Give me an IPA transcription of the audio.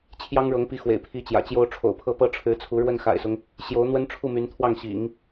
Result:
t͡ɕʰ j ɑ˥ ŋ ɻ ɤ˧˥ ŋ p i˧˥ x w ḛ˨˩ ɪ̯ pʰ i˧˥ t͡ɕ j ä̰˨˩ t͡ɕ j o˥ ʊ̯ ʈ͡ʂʰ o̰˨˩ ʊ̯ pʰ ɤ˥˩ p ɤ˥ ʈ͡ʂʰ ɻ̩˧˥ t͡sʰ u˧˥ ɻ w ə˥˩ n x a̰˨˩ ɪ̯ s ʊ˦ ŋ | ɕ j o˧˥ ʊ̯ n̪ w ə˥ n ʈ͡ʂʰ u˥˩ m y˧˥ n t̪ʰ w ɑ˥˩ ŋ ɕ ḭ˨˩˦ ŋ

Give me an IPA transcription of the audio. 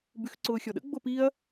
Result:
b y x ǀ ʊː xʲ ɔ ɗ ə̰ ɡ͡b o p i ɐ̯

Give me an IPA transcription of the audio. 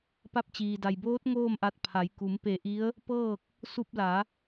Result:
p a˧ p̚ t͡ɕ iː˩ d a˩ j b oː˧˥ t̚ ŋ oː˥˨ m ʔ a˧ t̚ pʰ a˩˧ j k u˩˧ m p e˧˩ ʔ i˧˥ ə̯ | p ɤː˥˨ k̚ | s u˧ p̚ l a˩˧

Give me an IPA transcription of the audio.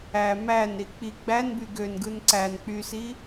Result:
æ m æ n ɾ i k͡p i ɡ͡b æ n b y ɡ ø n ɡ ɯ n ǀ æ n k͡p y s i

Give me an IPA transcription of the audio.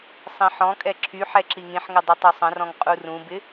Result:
sˤ ĩ ħ ɔ̃ kʼ ɛ ǁʰ y ħ ɛ ǁ i ŋ ĩ ħ ŋ ɪ dˤ y tˤ y sˤ ə̃ r ɔ̃ ŋ qʼ u r ũ b ɪ

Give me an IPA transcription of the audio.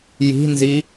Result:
j i̤ n z i

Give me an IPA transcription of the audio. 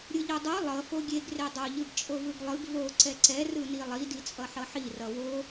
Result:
ɾʲ ɯ ʎ o dˤ o lˠ ʌ f o ɡʲ e ɡ r e dˤ o ʎ ɯ ɡ t͡ʃʼ o v ɯ ɡ lˠ ɯ ɡ v o ǀ ɛ ǀ ɛ r ɯ n i lˠ i d i t͡sʼ ʌ ħ ʌ ħ i r ʌ w o

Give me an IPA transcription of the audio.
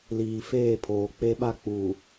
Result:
l iː˨ f eː˦˨ pʰ oː˨ k͡p e˦ ɓ a˦ k͡p u˨

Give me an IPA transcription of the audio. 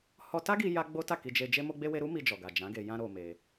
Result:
h ɔ˧ t a˦ ɡ i˧ j a˦ ɡ͡b o˦ t a˦˨ k i˧ d͡ʒ e˧ d͡ʒ e˦ m o˦ ɡ͡b e˦ w e˦ ɾ u˦ m i˧ d͡ʒ ɔ˨ ɡ a˨ d͡ʒ ã˨˦ ɡ e˧ j ã˦ ɾ o˧ m e˧

